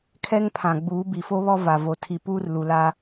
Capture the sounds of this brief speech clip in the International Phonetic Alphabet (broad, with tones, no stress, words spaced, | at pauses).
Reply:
kʰɛ˦ŋpʰã˨ ɡ͡buː˨˦bi˨fo˦βɔ˦ va˨vo˨ tʰi˨puː˦r lu˨la˦